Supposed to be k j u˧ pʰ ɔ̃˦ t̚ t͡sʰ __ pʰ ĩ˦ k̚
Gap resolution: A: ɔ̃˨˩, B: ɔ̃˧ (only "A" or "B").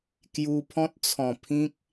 A